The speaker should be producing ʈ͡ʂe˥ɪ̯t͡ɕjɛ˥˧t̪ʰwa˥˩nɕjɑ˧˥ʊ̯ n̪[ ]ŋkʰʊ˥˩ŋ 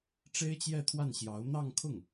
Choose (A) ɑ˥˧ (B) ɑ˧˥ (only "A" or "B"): A